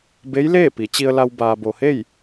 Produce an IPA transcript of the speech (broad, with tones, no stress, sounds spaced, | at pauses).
b e˧˥ j l eː˥˨ p i˩˧ t͡ɕ i˧ ə̯ l a˧ w b aː˩ b o˩ h e˥˨ j